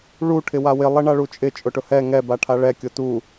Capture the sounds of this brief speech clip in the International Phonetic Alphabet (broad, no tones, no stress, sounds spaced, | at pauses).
ɭ u ʈʰ ɪ w a w ɪ lˠ ɛ ɳ a ɭ u t͡ʃʼ ɪ t͡ʃʼ ʊ ʈ ʊ h ɛ ŋ ɛ b a ʈʰ a ɭ ɛ kʲ ʊ t u